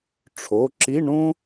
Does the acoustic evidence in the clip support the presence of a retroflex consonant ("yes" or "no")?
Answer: yes